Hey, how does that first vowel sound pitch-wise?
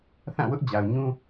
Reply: falling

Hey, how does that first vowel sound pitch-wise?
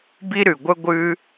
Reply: high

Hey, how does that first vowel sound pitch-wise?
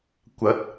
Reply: rising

